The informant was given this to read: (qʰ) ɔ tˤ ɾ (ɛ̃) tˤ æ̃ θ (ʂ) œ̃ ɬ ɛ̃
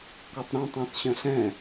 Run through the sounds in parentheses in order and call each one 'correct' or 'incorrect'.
incorrect, incorrect, incorrect

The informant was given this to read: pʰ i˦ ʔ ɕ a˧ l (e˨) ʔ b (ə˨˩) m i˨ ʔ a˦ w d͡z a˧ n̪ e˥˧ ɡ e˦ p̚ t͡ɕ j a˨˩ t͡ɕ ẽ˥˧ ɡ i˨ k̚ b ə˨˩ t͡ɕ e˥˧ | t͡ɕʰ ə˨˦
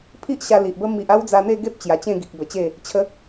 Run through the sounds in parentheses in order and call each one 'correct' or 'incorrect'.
incorrect, incorrect

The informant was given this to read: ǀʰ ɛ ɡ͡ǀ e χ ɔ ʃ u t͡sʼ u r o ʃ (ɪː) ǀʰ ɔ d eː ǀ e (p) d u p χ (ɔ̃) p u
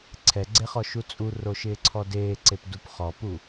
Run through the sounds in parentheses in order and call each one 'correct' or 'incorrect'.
correct, correct, incorrect

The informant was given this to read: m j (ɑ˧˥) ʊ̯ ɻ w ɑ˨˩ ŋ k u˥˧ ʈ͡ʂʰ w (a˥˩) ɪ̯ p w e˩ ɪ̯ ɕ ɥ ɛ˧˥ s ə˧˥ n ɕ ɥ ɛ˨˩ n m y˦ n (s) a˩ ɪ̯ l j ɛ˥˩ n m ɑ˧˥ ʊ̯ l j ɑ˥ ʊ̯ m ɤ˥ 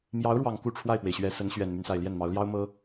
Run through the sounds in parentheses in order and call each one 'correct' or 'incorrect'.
correct, correct, correct

